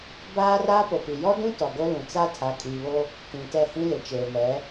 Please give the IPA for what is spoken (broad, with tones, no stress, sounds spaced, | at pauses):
b aː˦ r aː˦ p o˨ p i˨ j ɔ˦ d ũ˦ t ɔ˨ ɡ o˦ l ũ˨ t͡s a˦ tʰ a˨˦ kʼ iː˨ β o˦ | t ĩ˨ t ɛ˦˨ h ĩ˦ l ɪ˨ t͡ʃ eː˨ m ɛ˨˦